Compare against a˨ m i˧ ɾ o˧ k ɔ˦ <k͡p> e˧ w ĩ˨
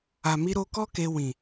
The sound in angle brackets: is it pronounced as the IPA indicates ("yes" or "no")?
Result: no